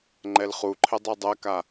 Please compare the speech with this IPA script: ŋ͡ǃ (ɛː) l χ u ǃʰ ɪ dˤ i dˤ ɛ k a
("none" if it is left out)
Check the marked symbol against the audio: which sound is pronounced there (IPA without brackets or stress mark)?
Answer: ɛ